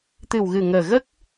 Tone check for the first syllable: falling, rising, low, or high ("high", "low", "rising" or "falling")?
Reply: low